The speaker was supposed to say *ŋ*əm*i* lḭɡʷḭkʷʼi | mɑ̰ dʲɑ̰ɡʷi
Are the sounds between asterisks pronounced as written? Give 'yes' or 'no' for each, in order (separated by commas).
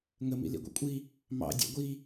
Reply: yes, no